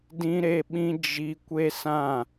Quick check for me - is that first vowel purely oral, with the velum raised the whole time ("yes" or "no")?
no